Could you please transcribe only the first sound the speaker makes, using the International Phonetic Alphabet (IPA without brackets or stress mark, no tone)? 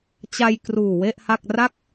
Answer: t͡ɕ